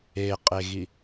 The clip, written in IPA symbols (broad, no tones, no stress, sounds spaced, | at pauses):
e qʼ e ɣ i